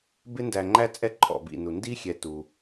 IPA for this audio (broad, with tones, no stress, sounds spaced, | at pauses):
b ɪ˦ n d æ˨ ŋ͡ǃ æ˦ t͡sʼ ɛ˦ ǃʰ ɔ̰˩ b ḭ˩ n u˩ n d i˥ xʲ ɛ˨ t u˩